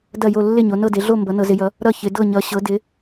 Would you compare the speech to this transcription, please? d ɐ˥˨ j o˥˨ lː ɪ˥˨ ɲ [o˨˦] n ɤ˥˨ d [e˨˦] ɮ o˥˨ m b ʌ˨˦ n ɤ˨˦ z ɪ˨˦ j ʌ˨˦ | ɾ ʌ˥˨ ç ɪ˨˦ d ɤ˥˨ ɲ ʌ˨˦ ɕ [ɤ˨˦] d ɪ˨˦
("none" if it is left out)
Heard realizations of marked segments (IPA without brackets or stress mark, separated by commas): o˨˦, e˨˦, ɤ˨˦